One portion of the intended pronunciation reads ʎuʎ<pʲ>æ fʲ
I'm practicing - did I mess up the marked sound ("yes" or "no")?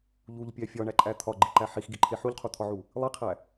no